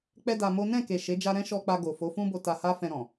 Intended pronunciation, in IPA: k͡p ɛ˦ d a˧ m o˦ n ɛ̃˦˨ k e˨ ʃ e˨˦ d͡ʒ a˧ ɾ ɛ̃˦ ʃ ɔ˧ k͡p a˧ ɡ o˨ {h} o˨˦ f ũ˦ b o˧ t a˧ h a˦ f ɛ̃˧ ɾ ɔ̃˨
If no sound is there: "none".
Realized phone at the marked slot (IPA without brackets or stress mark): f